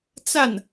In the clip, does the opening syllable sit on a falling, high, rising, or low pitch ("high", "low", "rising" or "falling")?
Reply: falling